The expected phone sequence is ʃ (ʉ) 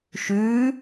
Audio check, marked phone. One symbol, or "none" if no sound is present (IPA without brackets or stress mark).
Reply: ʉ